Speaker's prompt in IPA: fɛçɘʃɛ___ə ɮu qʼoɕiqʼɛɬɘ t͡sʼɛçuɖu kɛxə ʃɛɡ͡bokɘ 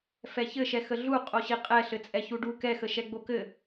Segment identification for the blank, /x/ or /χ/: x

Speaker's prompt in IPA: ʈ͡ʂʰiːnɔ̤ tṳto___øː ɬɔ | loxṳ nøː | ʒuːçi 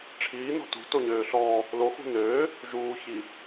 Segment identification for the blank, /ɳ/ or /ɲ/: ɲ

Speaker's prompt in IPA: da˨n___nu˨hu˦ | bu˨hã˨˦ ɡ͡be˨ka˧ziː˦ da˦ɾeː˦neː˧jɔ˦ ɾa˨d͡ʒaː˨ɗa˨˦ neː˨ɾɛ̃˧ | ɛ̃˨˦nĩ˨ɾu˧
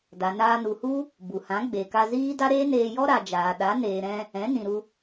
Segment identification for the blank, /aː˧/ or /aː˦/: aː˧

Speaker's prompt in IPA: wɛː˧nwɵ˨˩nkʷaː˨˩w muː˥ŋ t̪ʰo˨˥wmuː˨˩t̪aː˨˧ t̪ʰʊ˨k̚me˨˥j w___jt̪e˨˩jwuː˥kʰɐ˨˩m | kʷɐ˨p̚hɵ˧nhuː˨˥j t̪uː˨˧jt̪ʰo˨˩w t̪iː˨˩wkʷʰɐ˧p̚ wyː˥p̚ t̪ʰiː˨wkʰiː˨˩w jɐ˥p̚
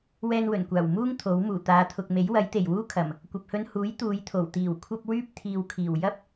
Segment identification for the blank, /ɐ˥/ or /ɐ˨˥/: ɐ˨˥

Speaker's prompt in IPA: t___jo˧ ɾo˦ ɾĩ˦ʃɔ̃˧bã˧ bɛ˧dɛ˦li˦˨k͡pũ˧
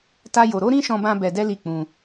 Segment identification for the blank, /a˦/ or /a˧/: a˦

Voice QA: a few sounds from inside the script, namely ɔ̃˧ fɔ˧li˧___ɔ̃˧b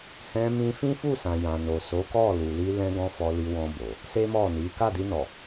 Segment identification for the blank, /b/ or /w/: w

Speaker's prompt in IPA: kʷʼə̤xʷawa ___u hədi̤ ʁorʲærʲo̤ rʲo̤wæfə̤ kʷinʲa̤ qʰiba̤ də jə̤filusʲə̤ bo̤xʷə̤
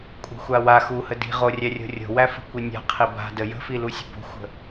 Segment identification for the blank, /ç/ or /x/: x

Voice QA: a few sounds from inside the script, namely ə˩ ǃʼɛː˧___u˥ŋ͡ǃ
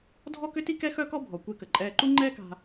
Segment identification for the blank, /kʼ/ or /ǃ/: ǃ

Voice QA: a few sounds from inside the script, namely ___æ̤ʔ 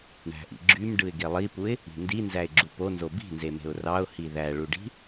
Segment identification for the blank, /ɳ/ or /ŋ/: ɳ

